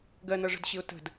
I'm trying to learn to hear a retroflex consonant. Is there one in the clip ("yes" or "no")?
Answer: yes